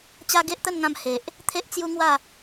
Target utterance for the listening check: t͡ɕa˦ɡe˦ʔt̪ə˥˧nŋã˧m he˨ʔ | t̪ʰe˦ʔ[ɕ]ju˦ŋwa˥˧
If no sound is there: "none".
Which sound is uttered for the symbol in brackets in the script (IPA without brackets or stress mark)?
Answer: t͡s